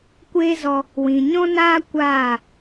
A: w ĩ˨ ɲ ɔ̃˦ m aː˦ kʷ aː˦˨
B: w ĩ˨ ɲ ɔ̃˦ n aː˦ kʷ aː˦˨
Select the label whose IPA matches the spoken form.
B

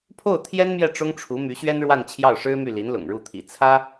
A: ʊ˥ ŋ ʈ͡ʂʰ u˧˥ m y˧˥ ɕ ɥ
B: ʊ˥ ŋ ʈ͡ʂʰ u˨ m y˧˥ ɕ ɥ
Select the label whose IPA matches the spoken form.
A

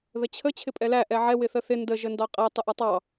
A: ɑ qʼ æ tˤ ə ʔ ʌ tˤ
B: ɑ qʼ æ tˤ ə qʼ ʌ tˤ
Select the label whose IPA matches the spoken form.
A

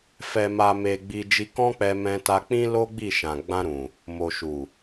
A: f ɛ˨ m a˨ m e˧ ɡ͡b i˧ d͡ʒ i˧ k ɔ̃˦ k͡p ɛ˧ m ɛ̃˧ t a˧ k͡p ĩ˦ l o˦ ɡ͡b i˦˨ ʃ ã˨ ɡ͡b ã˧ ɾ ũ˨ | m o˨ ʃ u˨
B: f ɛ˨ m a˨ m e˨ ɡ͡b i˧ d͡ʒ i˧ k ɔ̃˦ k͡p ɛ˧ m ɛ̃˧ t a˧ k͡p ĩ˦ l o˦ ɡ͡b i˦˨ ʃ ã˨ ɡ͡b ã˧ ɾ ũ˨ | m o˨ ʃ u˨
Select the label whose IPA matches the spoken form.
B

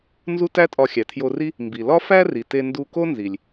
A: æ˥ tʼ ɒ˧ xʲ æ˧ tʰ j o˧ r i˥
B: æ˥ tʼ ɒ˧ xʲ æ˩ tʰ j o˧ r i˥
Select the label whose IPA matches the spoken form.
B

